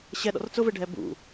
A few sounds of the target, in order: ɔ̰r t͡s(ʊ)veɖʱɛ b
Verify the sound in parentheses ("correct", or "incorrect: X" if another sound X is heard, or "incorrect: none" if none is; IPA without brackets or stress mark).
correct